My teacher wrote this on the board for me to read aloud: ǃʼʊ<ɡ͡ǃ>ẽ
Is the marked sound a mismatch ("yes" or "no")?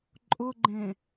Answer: no